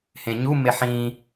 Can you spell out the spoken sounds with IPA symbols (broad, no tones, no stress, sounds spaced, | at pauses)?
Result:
h ẽ ɲ u m e ħ ĩ